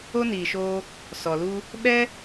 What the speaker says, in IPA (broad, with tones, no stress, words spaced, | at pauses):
o˦niː˨ʃoː˧ | sɔ˨lu˦ | ɓɛ˦